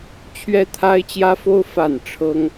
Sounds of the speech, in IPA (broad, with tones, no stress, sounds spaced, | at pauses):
t͡ɕʰ ɥ ɛ˦ t̪ʰ a˦ ɪ̯ t͡ɕ j ä˦ f o˦ ʊ̯ f a˥˨ n ʈ͡ʂʰ ɤ˦ ŋ